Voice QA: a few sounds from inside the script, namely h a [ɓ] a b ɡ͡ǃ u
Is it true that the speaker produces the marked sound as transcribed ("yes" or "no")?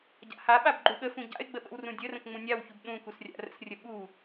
yes